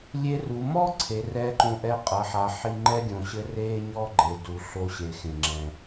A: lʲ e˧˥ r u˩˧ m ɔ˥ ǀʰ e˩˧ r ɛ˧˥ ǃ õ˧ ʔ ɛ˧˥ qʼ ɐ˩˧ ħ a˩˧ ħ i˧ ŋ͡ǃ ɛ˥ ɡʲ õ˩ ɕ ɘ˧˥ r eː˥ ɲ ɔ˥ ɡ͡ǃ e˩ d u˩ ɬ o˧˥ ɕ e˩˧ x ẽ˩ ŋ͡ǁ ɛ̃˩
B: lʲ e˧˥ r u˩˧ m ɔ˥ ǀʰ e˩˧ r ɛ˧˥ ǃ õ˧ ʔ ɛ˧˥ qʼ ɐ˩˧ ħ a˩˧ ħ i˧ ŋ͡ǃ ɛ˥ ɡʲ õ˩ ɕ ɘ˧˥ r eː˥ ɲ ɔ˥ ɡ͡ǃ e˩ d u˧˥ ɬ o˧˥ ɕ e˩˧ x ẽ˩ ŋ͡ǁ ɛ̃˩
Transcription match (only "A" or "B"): A